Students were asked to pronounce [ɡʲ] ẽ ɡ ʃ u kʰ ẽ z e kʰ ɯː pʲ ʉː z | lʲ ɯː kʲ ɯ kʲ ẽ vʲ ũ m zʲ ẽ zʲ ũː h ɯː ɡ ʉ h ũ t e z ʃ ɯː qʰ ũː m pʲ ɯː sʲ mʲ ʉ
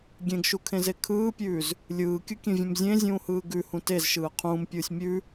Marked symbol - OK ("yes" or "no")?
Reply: yes